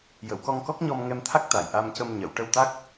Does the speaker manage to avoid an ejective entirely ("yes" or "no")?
yes